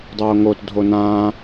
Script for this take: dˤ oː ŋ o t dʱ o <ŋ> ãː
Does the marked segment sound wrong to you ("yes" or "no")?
yes